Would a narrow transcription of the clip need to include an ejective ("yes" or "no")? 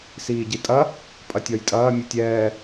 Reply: yes